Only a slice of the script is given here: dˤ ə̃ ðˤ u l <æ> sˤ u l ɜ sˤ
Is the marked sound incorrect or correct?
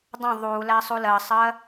correct